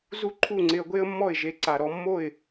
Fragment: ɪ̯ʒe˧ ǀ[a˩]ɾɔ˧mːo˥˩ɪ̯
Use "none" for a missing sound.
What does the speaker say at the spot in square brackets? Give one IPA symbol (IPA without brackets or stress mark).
a˩